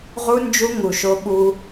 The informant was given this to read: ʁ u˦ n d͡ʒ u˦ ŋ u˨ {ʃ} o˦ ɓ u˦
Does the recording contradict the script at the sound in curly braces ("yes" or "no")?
no